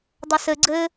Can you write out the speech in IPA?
dˤ ʌ s ɘ ɡ͡ǀ ɘ

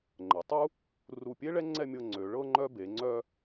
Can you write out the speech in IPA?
ŋ͡ǃ ə˩˧ tˤ u˥ | r u˧˩ pʲ e˥ ɭ ɛ˥ ŋ͡ǀ ɛ˥˧ mʲ ɤ˧ ŋ͡ǀ ø˩˧ ɭ ɤ˧ ŋ͡ǃ œ˧ b e˩˧ ŋ͡ǀ œ˧

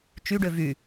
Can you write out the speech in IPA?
t͡ʃ y ɖ ø v y

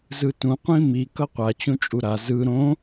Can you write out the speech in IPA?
z ɯ t ũ qʷ ĩ m i k ʌ qʷ a t͡ɕ ũ t͡ʃʼ u ɾ a z ɯ ɾ õ

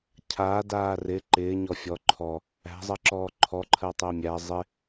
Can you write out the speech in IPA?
cʰ aː d aː r ɪ ǃ ɪː ɲ ɔ fʲ ɔ ǃʰ ɔ | æ̤ zˤ ɜ ǁ ɔː ǃʰ ɔ ǃʰ ɜ tˤ ɪː mʲ æ zˤ ɪ

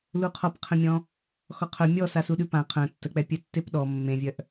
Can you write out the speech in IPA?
l u qʰ ɔ p qʰ ə̃ mʲ ɔ̃ | x ɔ qʰ œ mʲ ɔ s a s u ɗ ʉ p ã qʰ œ̃ tː ə k͡p ɛ pʲ œ tː e p ɗ ɔ mː ẽ vʲ œ ʔ

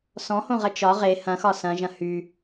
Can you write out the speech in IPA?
s ɔ̃ h õ ʁ ɐ t͡ʃ ɒ ʁ e h ɐ̃ x ɒ s ɐ̃ ʒ ɐ̃ h y

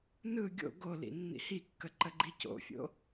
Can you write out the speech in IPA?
n ɯ ɡʲ o̰ ɡ o l ḭ nː ḭ h i kː ə ǃ ə ɡ͡ǃ i c o̰ fʲ o̰

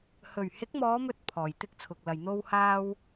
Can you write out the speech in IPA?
h ɵ˨˩ ɥ h ɪ˨˥ k̚ m ɔː˨˧ m ɵ˨˥ t̚ pʰ ɔː˨˩ j t̪ ɪ˥ k̚ t͡sʰ ʊ˨ k̚ l ɐ˨ j n̪ o˥ w h aː˥ w

